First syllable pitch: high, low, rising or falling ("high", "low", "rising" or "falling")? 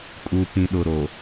low